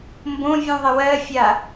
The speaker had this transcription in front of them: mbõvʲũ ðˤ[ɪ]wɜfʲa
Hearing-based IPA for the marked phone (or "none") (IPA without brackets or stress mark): ɪ